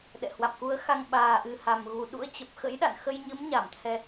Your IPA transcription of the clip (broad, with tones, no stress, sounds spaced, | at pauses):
ɗ ɛ̰˧˨ h w a̰˧˨ m k u˨˦ ə̯ x a˧ ŋ ɓ aː˨˩ ʔ ɨ˨˩ h a˨˩ m ɣ u˨˩ ɗ ṵ˧˥ ə̯ t͡ɕ ə˨˩ p̚ x ə̰˧˥ j ɗ a̰˧˨ n x ə˧ j ɲ ɨ˨˦ m ɲ a˧˩ m t̪ʰ ɛ˧